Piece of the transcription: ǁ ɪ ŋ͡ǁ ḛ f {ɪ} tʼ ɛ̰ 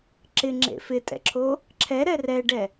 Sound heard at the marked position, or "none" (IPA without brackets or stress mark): ɪ